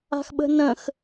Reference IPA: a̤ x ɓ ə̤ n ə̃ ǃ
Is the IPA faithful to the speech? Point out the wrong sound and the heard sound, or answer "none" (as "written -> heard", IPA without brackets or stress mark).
ǃ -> x